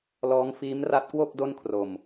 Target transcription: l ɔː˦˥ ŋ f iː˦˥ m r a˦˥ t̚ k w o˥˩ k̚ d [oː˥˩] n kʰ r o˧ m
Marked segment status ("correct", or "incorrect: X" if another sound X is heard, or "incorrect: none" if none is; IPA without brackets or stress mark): incorrect: o˥˩